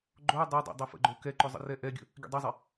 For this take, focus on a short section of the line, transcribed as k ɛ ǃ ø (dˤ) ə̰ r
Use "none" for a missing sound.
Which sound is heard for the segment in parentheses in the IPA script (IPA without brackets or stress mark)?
zˤ